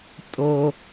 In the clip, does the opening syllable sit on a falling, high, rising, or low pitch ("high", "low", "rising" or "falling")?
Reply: low